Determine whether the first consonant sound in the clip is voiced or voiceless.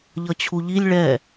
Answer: voiced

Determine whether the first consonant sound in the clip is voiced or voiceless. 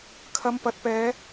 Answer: voiceless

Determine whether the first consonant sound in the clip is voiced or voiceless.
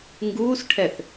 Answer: voiced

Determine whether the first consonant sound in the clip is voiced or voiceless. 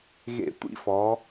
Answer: voiced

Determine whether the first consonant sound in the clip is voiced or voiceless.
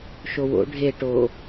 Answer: voiceless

